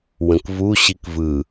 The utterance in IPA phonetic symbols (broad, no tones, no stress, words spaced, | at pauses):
wə̃kvu ɕikvɯ